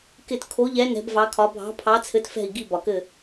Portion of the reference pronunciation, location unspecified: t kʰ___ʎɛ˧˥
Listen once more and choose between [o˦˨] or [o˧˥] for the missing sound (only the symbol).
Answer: o˧˥